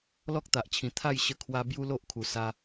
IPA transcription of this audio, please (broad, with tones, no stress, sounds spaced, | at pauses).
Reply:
l ɔ˦ k̚ t̪ a˨ ʔ t͡ɕʰ ĩ˨˩ t̪ʰ a˥˧ j ɕ ə˧ kʰ w a˧ b j u˦ l o˦ ʔ kʰ u˨˩ s a˧